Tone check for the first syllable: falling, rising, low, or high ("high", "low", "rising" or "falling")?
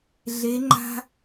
rising